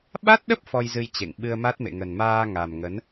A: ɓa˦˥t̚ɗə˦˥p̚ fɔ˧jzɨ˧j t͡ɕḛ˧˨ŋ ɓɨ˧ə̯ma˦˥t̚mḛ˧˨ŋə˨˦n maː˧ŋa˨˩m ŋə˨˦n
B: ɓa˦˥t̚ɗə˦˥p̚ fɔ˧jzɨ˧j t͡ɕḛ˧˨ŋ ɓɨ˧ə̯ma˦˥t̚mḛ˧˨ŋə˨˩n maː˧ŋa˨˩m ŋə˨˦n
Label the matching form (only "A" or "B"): B